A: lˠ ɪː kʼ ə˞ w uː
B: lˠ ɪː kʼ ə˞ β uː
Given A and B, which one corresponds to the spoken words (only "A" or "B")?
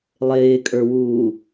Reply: A